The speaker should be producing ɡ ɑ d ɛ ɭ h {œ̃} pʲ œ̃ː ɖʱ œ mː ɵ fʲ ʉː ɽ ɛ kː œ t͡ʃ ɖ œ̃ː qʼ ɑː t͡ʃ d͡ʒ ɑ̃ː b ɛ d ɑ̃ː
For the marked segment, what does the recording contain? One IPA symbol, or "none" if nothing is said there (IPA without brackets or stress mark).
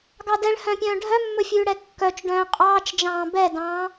œ̃